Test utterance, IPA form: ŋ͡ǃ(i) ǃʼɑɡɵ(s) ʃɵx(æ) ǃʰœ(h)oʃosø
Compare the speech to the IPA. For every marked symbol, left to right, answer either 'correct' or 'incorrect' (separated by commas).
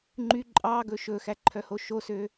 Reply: incorrect, incorrect, correct, correct